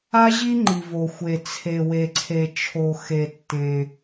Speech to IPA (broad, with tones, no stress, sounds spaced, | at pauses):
a˥ ʑ i˥ ŋ͡ǃ i˩ v o˩ xʷ e˩ t͡sʰ e˩ w e˩ ǀʰ e˩ t͡ʃʰ o˩ x e˩ tː ẽ˩